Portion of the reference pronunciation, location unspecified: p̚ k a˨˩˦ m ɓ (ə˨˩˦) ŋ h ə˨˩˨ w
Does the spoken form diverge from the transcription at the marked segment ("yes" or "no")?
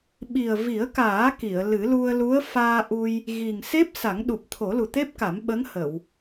yes